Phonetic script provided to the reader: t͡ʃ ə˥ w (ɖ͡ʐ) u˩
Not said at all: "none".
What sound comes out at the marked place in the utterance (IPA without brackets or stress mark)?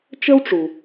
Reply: ʈ͡ʂ